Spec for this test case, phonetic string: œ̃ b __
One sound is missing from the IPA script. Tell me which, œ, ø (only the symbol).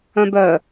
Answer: œ